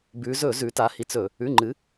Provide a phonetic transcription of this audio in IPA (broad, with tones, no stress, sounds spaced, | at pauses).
b ʉ˩˧ z ɵ˧˩˧ z ʉ˩˧ t a˩˧ h i˩˧ t͡s ɵ˧˩˧ | ʉ˩˧˩ ŋ͡ǃ ɨ˩˧